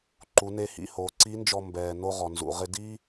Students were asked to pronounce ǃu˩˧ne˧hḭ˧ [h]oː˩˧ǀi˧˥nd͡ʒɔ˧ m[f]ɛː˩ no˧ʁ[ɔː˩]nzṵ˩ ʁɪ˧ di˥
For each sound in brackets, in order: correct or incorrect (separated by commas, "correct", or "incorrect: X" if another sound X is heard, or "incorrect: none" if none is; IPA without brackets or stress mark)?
correct, incorrect: b, incorrect: ɔ˩